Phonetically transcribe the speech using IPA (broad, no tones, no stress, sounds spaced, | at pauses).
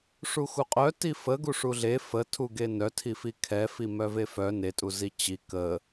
ʂ u x u qʼ œ t i f ə ɡ u ʂ u ɮ e f ə tʰ u ɡ e n œ tʰ i f i kʰ ɛ f i m œ v e f œ n e tʼ u z i t͡ɕ i k ə